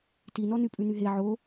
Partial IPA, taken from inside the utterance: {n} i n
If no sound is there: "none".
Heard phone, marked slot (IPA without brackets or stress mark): t